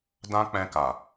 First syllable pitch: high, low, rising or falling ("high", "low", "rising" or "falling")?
high